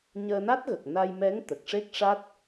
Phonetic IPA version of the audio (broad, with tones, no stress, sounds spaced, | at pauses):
ɲ əː˧ n a˦˥ t̚ ɣ ə˨˩ k̚ n a˧ j m ɛ˧˥ ŋ t̪ ə˨˩ k̚ ʂ e˦˥ k̚ ʂ a˦˥ t̚